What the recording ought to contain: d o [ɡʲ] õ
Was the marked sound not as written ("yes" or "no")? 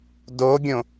no